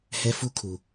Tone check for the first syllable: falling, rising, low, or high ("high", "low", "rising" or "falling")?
high